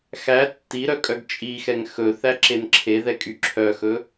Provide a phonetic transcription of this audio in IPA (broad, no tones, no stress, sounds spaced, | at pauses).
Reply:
x æ tː i ɾ œ kʼ œ ɡ t͡ʃʼ i x ɛ ŋ x ɵ θ æ ǁ e n ǁʰ e ð ɛ kʼ y ǁʰ œ x ɵ